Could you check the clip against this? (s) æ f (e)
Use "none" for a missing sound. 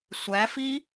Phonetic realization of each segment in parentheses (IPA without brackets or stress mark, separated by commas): sʷ, i